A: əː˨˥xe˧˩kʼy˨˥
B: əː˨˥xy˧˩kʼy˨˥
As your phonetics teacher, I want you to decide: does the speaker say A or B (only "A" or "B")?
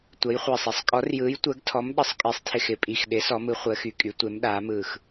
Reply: B